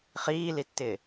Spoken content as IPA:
χiːlitːɪː

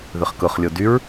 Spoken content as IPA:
ðʏχkʊχlʲo dyɹ

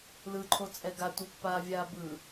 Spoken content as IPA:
lɯǃʰot͡sʼɛ ɡatʷipːaːvʲaː bɯ

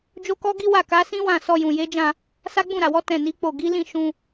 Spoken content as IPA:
d͡ʒo˦kɔ˦ɡi˦wa˦˨ ka˨˦sĩ˦wã˦˨ sɔ˧jũ˨je˨˦d͡ʒã˦˨ | sa˦ɡ͡bũ˦˨ɾa˨wɔ˨˦ tɛ̃˦˨ni˨˦k͡po˦˨ ɡi˨˦lĩ˦˨ ʃũ˧

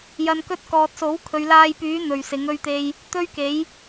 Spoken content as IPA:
jɐ˨nkɵ˧t̚kɔː˨t̚so˨˥w kʰɵ˨ɥlaː˧jpyː˨˥ n̪ɵ˨ɥsɪ˨˥ŋ ɵ˥ɥt̪e˥j | t̪ɵ˥ɥke˨˥j

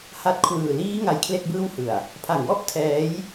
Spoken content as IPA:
ha˦˥t̚kʰwɯː˨˩ liː˦˥ ŋa˦˥jkʰle˥˩k̚bɯː˥˩whɯ˨˩a̯ | pʰa˨˩ŋwɔ˥˩ʔ tʰɛː˦˥j

